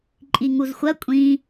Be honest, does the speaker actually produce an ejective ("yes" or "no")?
yes